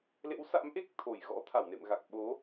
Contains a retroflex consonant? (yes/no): no